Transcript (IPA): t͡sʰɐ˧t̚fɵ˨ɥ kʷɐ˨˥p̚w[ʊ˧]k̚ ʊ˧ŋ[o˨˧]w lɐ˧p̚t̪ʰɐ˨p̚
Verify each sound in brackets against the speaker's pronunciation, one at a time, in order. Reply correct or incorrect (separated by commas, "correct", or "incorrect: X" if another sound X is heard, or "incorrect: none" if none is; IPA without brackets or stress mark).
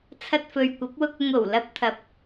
correct, incorrect: o˨˩